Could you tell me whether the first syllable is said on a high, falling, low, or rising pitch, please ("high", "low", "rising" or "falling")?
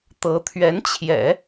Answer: rising